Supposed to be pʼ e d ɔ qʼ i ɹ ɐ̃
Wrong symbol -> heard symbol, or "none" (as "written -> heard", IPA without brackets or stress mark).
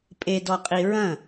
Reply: none